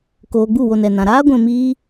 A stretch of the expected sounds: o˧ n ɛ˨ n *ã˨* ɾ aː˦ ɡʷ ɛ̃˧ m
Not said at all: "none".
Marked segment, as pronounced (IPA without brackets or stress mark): ã˨